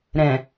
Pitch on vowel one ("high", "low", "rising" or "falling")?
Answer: low